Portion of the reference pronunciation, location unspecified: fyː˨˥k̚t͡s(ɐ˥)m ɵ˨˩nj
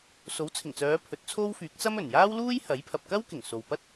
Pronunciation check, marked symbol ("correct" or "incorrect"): correct